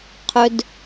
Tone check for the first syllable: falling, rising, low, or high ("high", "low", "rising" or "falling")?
low